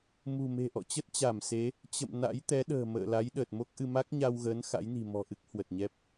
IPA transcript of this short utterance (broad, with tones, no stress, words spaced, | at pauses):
mṳ˨˩ me̤˨˩ʔɔ̰˧˨t͡ɕə˦˥t̚ t͡ɕa˧˩mse˨˦ | t͡ɕə̰˧˨m na̰˧˥jt̪ɛ˨˦ɗə̤ː˨˩ mə̰ː˧˨la˨˦j ɗəː˨˩t̚mo˦˥k̚ʔɨ˧ ma˦˥k̚ɲa˧wɣəː˨˦n xa̰˧˥jni̤˨˩ mɔ̤˨˩ʔɨ˦˥k̚ hwə˨˩t̚ɲɛ˦˥p̚